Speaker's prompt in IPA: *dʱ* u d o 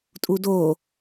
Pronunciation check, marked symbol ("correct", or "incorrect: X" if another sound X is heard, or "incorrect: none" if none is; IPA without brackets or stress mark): incorrect: tʼ